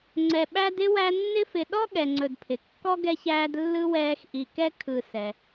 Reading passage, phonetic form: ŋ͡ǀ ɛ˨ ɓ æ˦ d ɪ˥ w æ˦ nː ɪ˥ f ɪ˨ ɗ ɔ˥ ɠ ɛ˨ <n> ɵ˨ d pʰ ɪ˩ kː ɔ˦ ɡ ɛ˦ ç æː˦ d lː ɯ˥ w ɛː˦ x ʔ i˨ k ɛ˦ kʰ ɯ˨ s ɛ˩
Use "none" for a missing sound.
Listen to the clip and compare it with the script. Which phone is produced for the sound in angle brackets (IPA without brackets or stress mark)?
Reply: ŋ͡ǀ